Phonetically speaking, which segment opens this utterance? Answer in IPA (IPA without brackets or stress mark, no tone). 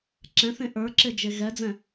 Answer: ǁ